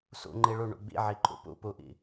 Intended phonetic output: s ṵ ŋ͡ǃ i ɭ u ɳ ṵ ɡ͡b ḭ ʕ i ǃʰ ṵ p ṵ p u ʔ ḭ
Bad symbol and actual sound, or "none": none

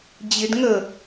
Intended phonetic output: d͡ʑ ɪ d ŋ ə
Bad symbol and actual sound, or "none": none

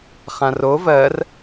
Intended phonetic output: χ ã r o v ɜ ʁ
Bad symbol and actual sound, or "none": ʁ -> r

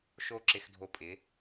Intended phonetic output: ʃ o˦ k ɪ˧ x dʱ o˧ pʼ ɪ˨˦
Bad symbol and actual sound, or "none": k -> ǁ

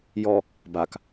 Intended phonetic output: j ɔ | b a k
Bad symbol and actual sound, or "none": none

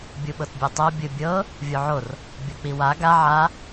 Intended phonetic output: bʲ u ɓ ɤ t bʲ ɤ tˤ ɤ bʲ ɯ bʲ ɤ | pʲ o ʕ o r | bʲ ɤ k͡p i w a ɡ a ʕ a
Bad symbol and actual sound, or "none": pʲ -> vʲ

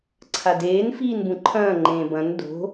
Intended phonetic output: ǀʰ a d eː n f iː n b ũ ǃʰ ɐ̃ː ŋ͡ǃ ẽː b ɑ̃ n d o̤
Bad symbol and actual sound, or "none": ɑ̃ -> ɐ̃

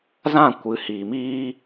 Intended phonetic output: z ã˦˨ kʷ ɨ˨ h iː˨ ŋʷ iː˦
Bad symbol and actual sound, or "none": ŋʷ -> m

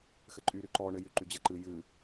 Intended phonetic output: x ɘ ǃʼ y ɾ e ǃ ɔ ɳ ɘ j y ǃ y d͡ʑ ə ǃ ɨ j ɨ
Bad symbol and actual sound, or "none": e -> y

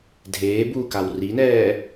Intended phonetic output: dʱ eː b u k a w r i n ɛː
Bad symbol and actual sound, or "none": none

